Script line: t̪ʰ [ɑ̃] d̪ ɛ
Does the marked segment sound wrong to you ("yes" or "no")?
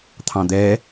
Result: no